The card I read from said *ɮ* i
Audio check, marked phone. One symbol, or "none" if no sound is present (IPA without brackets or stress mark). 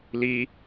l